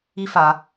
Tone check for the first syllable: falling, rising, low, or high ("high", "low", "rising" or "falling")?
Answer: high